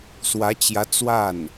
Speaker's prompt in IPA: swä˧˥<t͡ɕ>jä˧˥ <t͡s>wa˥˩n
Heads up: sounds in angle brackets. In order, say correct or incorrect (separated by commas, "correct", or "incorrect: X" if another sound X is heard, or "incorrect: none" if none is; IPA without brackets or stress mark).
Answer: correct, correct